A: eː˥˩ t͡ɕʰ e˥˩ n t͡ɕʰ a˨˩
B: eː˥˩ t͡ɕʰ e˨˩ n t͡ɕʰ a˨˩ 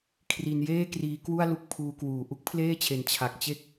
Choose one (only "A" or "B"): B